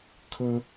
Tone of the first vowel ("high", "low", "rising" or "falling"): high